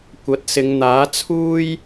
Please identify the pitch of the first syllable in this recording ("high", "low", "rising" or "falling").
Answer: rising